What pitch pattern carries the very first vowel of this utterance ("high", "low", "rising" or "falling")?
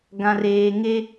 low